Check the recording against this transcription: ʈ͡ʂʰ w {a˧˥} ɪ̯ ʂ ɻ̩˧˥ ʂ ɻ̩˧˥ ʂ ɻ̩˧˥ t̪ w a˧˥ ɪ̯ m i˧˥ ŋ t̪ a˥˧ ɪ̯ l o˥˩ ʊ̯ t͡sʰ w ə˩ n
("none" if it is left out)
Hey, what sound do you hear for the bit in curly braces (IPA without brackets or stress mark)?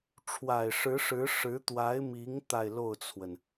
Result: a˨˩